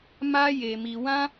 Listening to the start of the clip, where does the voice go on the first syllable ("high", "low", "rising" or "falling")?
high